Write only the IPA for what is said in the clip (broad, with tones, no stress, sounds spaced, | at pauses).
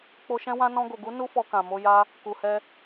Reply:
k͡p o˧ ʃ ɛ̃˦ w ã˦ n ɔ̃˧ ɡ o˨ ɡ u˨˦ n u˦ f ɔ˧ k ã˨ m o˧ j a˧ | k u˨ h ɛ˧